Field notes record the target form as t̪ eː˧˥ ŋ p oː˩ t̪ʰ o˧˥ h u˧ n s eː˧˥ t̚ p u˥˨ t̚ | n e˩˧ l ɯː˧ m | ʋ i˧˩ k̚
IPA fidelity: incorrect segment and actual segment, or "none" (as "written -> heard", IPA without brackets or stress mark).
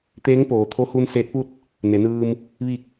l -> n